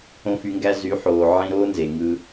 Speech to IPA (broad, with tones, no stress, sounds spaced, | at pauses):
õ˦ f y˧ ŋ ɡ æ˦ z y˨˦ ħ oː˨ ʕ ĩ˧ ɾ oː˦ n z e˨ ŋ ɯ˧